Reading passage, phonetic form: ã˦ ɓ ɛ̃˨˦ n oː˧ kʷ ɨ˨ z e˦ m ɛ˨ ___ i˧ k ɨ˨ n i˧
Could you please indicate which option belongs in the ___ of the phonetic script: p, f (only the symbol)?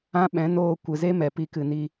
p